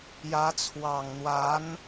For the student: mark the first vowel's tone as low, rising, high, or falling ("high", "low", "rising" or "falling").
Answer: rising